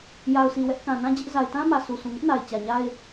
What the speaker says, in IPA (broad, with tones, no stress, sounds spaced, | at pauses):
j a˨ ʊ̯ sʰ i˨ w ɛ˦ ʔ k ã˨ n ã˦ d͡ʑ ɪ˦ ʔ z a˨ ɪ̯ t ã˦ m ä˨ s u˨ sʰ ũ˨ ŋ ʊ˦ ʔ n a˨ ɪ̯ t͡ɕ ä˨ ɲ a˦ ɪ̯